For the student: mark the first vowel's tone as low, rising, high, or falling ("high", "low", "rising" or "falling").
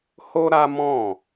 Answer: high